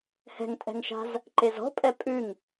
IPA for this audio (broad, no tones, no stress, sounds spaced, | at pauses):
h ɛ̤ ŋ tʼ ɛ̤ ŋ ʃ a̤ z | ǃ e z ɔ̤ pʼ ɛ pʼ ʉ ŋ